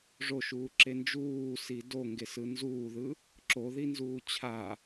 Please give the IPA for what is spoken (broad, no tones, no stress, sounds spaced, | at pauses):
ʐ o ʃ uː ǁ e n d͡ʒ uː s i d o ŋ ɡ e s ɯ n z uː ð ɯ | ǁ o ð i n z uː t͡ɕʰ a